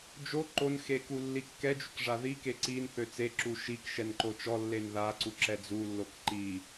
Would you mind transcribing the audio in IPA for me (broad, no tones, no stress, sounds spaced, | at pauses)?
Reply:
d͡ʒ o ǃ o n x e k u lː i kː ɛ d͡ʒ y k ʐ a ð i k e ǀ i n θ ø t͡s e ǁ u ʃ i k ʃ ɛ n ǃ o t͡ʃ ɔ lː e n ð a ǀ u ǁ ɛ d͡z u lː o k ǃ i